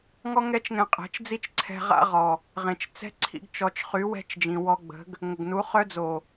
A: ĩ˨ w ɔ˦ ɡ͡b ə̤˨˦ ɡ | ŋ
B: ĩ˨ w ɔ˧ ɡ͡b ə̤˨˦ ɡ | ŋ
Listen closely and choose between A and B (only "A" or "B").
B